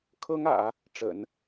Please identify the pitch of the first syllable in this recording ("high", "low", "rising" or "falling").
high